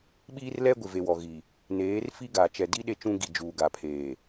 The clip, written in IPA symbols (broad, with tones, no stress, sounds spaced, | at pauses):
ɓ iː˦ r l ɛ˦ ɡʷ ɪ˨ v e˨ w ɔ˨ ɣ i˨ | n eː˨˦ r f i˦ ɡ a˨ t͡ʃ ɛ˨ d i˦ ɗ e˦ t͡ʃ ũ˦ ɡ i˨ d͡ʒ uː˨ ɡ a˨ pʰ eː˨